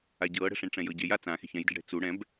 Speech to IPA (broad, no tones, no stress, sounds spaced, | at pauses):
a ɟ ɤː ɽ ɛ̤ ʂ ẽ ɳ ʈ͡ʂ ɛ̃ j ɤ ɟ e j a t͡s ã x e̤ ç ɛ̃ j d i̤ ɖ ɽ ɛ̤ t͡s u ɽ ɛ̃ b